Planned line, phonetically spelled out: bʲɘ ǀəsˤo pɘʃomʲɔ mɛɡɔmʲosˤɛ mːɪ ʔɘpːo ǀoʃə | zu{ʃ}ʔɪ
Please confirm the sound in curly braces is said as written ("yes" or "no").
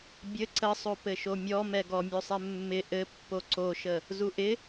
no